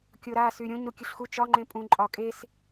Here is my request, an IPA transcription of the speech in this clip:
kʲ o ɾ a s y ɾʲ õ ɲ ɾ u kʲ ɯ ɬ x u t͡ʃ ɒ ŋ͡ǃ ẽ pʼ ũ ǃʼ ɒ kʼ e s

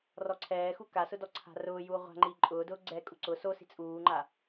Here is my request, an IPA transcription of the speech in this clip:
r ɔ ǀʰ ɛː x u k a s ʊ d ɔ ǀʰ a̤ r ʊː j uː ʁʷ a̤ ŋ͡ǃ iː ǃʼ ʊː d ʊː ɡ͡ǀ ɛ kʼ u ǀ ʊ s o s i̤ t͡sʼ uː ŋ͡ǃ a

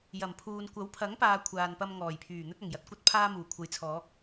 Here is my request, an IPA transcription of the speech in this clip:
j ɐ˨˩ m pʰ uː˨ n kʷ ɐ˨˥ w pʰ ɐ˨˥ ŋ p aː˨ kʷʰ aː˨ n p ɐ˧ m ŋ ɔː˨˩ j pʰ yː˨˩ n̪ ɵ˥ t̚ ɐ˨˩ ŋ j ɐ˨ t̚ kʷ ɐ˥ t̚ pʰ aː˥ m uː˨˩ kʷʰ ɐ˨ j t͡sʰ ɔː˨˥ k̚

